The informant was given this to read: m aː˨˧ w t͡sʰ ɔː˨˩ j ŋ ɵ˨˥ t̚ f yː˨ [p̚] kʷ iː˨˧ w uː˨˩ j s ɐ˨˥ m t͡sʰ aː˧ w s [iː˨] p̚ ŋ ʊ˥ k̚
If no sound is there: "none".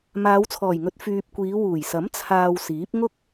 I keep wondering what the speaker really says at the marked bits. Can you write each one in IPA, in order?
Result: p̚, iː˨˥

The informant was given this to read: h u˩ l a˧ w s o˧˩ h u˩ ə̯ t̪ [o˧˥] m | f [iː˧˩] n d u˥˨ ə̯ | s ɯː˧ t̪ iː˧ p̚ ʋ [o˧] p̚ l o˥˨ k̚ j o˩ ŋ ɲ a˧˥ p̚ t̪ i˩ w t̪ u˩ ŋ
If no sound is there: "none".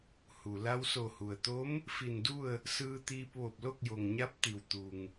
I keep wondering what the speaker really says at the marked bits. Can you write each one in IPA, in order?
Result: o˧˥, i˧˩, o˧˩

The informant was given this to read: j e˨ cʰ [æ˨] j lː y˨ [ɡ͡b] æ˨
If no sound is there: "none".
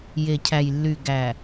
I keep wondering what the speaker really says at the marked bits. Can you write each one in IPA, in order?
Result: æ˨, ɡ

